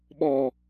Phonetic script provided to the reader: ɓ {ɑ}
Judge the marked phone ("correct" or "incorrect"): incorrect